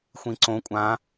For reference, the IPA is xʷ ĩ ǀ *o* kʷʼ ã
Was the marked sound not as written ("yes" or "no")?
yes